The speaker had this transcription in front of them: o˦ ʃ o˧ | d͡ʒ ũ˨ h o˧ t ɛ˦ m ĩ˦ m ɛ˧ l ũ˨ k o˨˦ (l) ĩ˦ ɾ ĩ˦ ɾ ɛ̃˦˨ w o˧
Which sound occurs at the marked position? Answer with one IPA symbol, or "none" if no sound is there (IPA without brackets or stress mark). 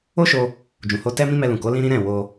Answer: l